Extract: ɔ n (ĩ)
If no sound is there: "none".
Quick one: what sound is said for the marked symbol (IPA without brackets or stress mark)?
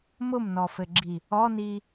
i